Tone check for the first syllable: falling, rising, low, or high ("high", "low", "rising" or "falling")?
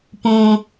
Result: low